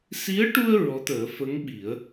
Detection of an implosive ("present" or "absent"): present